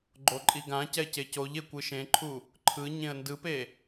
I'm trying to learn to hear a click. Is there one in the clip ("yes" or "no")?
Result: yes